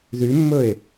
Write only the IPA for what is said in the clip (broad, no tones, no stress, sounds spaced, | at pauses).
ð y mː ɵ e̯